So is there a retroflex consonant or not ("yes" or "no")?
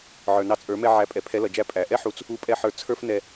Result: no